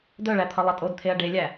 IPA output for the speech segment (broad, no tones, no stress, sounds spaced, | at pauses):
d œ ɭ æ t̪ʰ ʌ lˠ ʌ tʼ o d t̪ʰ e ɐ̯ ɖ e lʲ æ